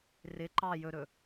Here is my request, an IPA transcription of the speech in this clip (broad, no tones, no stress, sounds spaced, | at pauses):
r ɪ ǃ ɑ j ɵ ɾ ɵ